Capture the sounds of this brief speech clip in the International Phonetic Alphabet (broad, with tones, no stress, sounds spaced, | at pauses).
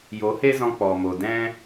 j o˨˦ h e˦ z ɔ̃˧ k͡p ɔ˨ m o˨ d ɛ̃˦